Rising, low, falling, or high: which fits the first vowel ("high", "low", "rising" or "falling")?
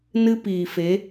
high